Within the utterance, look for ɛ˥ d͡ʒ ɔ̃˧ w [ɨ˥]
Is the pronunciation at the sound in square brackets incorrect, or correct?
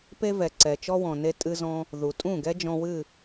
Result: incorrect